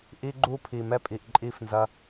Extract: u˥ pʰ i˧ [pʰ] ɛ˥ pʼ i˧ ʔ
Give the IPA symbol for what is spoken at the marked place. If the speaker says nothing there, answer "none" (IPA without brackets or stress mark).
m